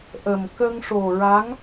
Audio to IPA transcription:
ʔə˨˩m kə˧ŋʂo˨˩ɹa˧˥ŋ

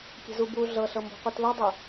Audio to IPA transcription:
kʲe̤zubu ɮɤɬɤmbo̤ qʷitlɤdˤɯ

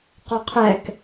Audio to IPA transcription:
qɔqʰɛk

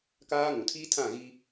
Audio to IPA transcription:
kaː˦ŋũ˨ tʰiː˦tʰã˦˨ ɣi˦

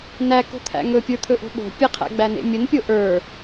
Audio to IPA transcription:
næko̤t̪ʰæ̰ ŋɵpʲə˞t̪ʰɵʔo̤ ɓo̤ pʲəqʰæ̰ɡ͡bænḛ mʲənpʲo ʔə˞

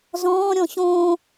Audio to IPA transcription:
zɔ̃ːɾʲɔ̃ ɕõː

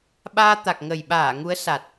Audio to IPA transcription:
ɓaː˧t̪a˨˩k̚ŋə˨˩jɓaː˧˩ ŋu˨˦ə̯sa˨˩t̚

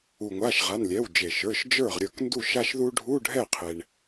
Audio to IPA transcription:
u˩ŋʷa˩˧˩ʃʁa˩˧˩n lʲɛ˩˧˩wd͡ʒe˩ʃə˞˩˧˩ʃ d͡ʒə˞˥˩ʁ ɾʲə˞˥˩k ndu˥˩ ʃa˧ʃðu˧ ɖʱu˧˥˧ɖʱɛ˥˩ qʰe˩ɳ

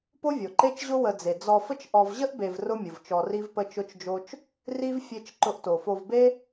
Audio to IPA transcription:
po˦vʲo˩ǃe˦t͡ʃʑʊ˦ wə˨d͡ze˩ d͡zɔ˨fə˦t͡ʃʔɔ˨v ʑə˥ʔbe˨v rʊ˦mʲʊ˩vt͡ʃɔ˨ ri˦vpə˦t͡ʃʊ˦t͡ʃd͡ʒo˦t͡ʃ | ri˥v fʲe˦t͡ʃ ǃʊ˨ʔto˩fo˨vbe˦

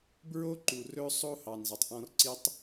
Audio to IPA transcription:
bɹo˦ǃu˨rɵ˦ sˤo˦hɑ˨nzɑ˨tˤ ʔɔ̃˦r ǀi˦tˤ

